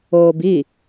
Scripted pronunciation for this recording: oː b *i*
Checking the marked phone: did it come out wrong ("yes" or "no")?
no